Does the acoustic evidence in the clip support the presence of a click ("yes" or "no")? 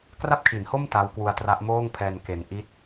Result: no